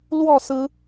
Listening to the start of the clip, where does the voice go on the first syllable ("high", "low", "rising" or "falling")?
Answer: falling